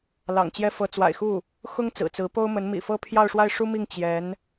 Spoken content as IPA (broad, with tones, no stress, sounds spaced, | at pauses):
l ɑ̰˨˩ ŋ t͡ɕ j ɛ˥ f ɤ˧˥ t͡s w a̰˨˩ ɪ̯ x u˥˩ | x ʊ˥ ŋ t͡s ɹ̩˨˩ t͡s ɹ̩˧˥ p o˥ ʊ̯ m ə˧˥ n m ḭ˨˩ f ɤ˥ pʰ j ɑ˥˧ ʊ̯ ʂ w a˥˩ ɪ̯ ʂ u˥ m i˥˩ ŋ t͡ɕ j ɛ˧˥ n